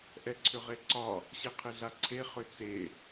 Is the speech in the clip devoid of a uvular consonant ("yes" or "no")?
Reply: no